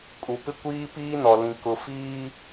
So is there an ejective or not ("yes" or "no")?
yes